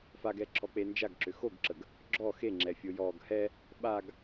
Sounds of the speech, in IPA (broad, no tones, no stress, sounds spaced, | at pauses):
f a ɡ ɛ ǁʰ ɔ k͡p e n d͡ʒ a ɡ ǁ ʏ x o ɡ ǁ ə ɡ | ɡ͡ǁ ɔ x e ŋ͡ǁ ɛ fʲ o j ɔ ɡ h ɛ | ɓ a ɡ